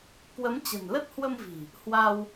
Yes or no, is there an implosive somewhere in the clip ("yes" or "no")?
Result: no